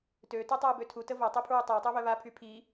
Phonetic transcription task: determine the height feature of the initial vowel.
mid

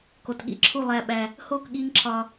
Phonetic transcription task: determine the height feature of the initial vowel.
mid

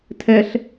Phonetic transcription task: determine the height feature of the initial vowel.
mid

